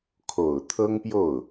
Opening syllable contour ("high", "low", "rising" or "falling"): low